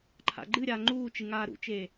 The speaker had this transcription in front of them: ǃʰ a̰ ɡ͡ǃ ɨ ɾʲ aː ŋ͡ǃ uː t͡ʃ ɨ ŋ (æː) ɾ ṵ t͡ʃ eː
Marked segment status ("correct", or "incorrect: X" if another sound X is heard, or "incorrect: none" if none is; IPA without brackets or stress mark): incorrect: aː